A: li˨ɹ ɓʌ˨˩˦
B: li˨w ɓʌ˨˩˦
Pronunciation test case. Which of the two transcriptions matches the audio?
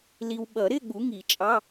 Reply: B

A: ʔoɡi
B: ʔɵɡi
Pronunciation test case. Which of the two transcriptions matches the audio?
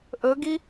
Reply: B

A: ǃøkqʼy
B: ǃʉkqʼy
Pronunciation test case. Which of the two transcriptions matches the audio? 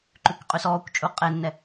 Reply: B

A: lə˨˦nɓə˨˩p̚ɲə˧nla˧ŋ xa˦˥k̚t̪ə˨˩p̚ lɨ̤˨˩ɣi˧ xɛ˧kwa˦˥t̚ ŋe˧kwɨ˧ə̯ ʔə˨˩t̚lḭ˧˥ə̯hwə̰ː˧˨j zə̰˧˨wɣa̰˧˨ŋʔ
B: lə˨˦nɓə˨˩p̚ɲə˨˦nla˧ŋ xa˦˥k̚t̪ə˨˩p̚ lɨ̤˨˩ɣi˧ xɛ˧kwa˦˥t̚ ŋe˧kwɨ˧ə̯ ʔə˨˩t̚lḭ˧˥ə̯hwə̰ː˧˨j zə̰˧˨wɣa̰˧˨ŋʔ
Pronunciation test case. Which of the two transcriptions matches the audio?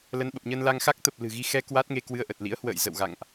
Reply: A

